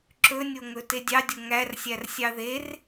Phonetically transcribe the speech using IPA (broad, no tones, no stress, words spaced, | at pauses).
ǁɵnʲoŋɵ tedʲɑdʲo ŋærsʲær sʲɑðer